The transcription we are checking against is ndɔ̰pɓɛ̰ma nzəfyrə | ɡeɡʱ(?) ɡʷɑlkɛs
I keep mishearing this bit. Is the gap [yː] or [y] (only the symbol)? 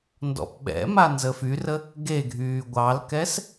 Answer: yː